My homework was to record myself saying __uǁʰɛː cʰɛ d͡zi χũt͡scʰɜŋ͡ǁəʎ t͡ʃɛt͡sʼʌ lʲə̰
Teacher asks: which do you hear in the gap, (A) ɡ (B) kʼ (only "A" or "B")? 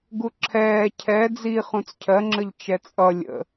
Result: A